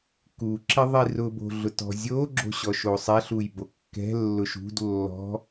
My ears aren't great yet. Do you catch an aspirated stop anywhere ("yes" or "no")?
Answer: no